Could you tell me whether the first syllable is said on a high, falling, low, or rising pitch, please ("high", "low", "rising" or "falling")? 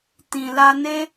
low